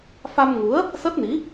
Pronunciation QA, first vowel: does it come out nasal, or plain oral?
oral